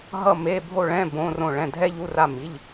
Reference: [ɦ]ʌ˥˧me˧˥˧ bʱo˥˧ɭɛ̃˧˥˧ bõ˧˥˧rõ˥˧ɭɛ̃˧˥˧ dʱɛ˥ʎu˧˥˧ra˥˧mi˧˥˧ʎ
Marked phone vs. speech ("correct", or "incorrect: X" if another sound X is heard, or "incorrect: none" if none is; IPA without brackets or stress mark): correct